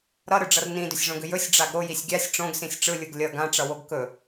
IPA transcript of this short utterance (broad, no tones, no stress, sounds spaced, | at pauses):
ɾ ʌ ɾ ɯ ɖ͡ʐ ʌ r n ĩ d ʏ sʲ ʐ õ ɡ ʏ j ɵ sʲ ɖ͡ʐ a ɡ ɾ o j i sʲ ɡʲ a sʲ ʈ͡ʂ õ ɡ s ĩ sʲ ʈ͡ʂ ɯ lʲ ɯ ɡ lʲ ʌ ɡ ã ʈ͡ʂ ʌ w o ɡ k ɵ